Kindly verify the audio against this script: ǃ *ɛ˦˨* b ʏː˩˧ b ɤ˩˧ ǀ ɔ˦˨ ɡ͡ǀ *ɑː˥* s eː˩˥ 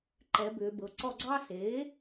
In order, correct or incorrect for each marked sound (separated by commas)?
incorrect, correct